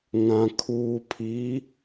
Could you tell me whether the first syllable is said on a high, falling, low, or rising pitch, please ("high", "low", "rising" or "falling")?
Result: low